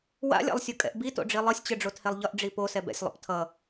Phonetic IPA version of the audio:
wa̰lʲa̰lˠsʲukʼɛ̰ʔ bito̰ɖ͡ʐi lˠɯsʲt͡ɕɯɖ͡ʐothelˠ ʎʌʔɖ͡ʐi posɛ bɛ̰sʲlˠo̰p tʰʌ

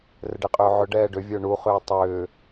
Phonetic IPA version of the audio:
rɘɖeqʼʏːʕʏ ɖɛːɖʏ vʲə˞ɳu χʏːtˤʏː

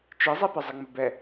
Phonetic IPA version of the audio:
t͡ʃizˤipəzˤɪ ŋ͡məbɛ

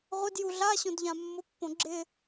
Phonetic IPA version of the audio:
ʁʷɪd juɮa ɕõdʎãmːʊ pːõɡ͡ǁɪ

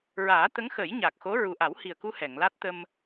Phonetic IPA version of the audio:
ɹaː˨˩˦t̪ə˧˥ŋxə˨˩˦j ɲa˨˩k̚xo˧˥ ɹu˨˩ʔa˨˩˦whi˨˩ə̯ku˧ hɛ˨˩˨ŋla˦˥t̚t̪ə˧m

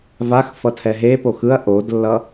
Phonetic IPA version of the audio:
vax fʌtʰɛɦepox ɯɐ̯ ʔodlːʌ

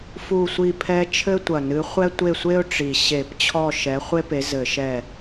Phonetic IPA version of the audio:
fu˦˨sʷi˦˨pʰɛ˦ t͡ʃʰɘ˦tʷɐ˨˩nɨ˨˦ χʷɛ˦tʷe˦˨sʷe˦ʊ̯ ʈ͡ʂi˨˩ ɕe˧˩˧pt͡ɕʰɔ˦˨ ʃɛ˨˦χʷe˦pe˨˦ zɘ˧˩˧ ʃɛ˦˨

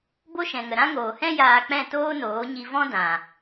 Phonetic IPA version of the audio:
bo˦ʃɛ̃˨ŋə˨ ɾã˦ŋoː˨hɛ̃˦ jaː˧k͡pɛ̃˦˨ toː˦noː˨˦ɲi˧ vɔ̃˦ dã˨

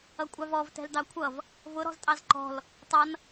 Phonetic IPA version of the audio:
ʌkʷʼɑvɔv tɛ̤ldɑkʷʰʌv | vʊ ɾɔ̤ztʼɑzǃɔ̤l | tˤʌn

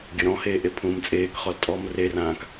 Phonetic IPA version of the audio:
ɡʲəɾɔ̃heː ʔepʰũːmt͡sʼeːkχɔl tʼɔm rerãːk

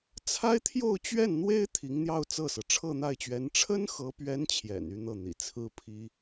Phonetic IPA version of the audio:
t͡sʰa˥ɪ̯t̪ʰjo˥˧ʊ̯t͡ɕɥɛ˥˩nn̪we˥ɪ̯ t̪ʰi˧˥ŋn̪jɑ˥˧ʊ̯t͡sɤ˥˩sɤ˩ ʈ͡ʂʰɤ˥˧n̪a˥˩ɪ̯t͡ɕɥɛ˧˥n ʈ͡ʂʰə˥nxɤ˧˥pɥɛ˧˥n t͡ɕʰjɛ̰˨˩ny˥˧ n̪ɤ˥˩n̪ḭ˨˩ t͡sʰɹ̩˥pʰi˥

